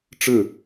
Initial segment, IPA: ʈ͡ʂ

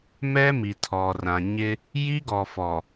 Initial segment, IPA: m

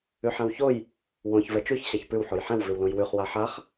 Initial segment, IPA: ʉ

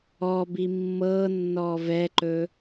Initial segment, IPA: ɔ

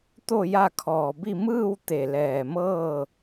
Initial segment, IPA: t̪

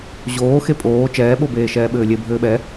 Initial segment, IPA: ʑ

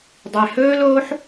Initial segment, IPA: dˤ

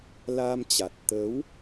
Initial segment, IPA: l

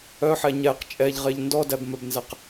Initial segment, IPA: œ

